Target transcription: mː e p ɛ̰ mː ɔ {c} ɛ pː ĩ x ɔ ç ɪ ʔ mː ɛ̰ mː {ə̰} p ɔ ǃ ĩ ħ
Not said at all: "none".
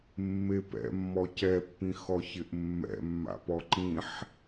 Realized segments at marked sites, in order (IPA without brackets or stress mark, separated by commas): c, a̰